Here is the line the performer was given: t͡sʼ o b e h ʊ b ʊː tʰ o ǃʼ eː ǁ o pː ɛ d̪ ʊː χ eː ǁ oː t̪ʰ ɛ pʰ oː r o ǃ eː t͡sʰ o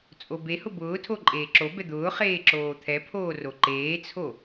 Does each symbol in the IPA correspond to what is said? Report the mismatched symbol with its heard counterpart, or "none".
pː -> b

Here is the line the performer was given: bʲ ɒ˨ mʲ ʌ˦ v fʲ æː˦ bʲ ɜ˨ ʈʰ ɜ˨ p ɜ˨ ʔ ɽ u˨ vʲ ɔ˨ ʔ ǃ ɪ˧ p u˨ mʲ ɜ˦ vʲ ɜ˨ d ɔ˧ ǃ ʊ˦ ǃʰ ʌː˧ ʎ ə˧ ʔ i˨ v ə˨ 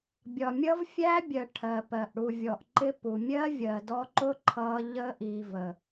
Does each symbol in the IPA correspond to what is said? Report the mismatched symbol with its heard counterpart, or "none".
none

